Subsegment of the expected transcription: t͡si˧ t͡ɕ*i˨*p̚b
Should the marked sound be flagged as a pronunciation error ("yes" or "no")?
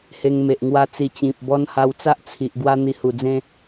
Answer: yes